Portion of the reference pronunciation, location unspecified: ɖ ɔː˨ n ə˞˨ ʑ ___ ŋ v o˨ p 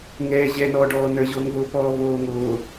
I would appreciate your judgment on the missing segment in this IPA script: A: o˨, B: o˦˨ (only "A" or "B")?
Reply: A